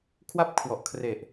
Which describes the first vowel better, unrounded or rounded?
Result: unrounded